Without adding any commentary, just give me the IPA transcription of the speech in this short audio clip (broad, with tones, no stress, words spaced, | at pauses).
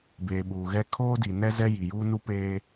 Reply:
beː˨ ɓuː˨ɣɛ˦ kʰoː˦di˨ nɛ˦zɛ˦ ji˨juː˦ nu˦peː˦